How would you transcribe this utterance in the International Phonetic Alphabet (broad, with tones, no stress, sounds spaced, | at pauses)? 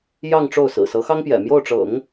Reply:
j ɑ˥˧ ŋ ʈ͡ʂ o˥˩ ʊ̯ s ɹ̩˨˩ s ɤ˧˥ x ɑ˥ ŋ p j ɛ̰˨˩ m j o˥˩ ʊ̯ ʈ͡ʂ ɤ̰˨˩˦ ŋ